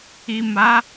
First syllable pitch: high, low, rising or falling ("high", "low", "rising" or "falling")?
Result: low